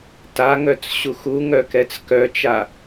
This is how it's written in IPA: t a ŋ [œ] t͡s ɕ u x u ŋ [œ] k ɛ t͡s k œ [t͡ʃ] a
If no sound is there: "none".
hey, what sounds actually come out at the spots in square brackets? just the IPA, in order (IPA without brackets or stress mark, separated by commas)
œ, œ, t͡ʃ